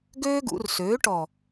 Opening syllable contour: high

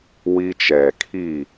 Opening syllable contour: high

